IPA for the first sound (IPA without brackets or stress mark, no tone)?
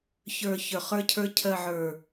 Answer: ç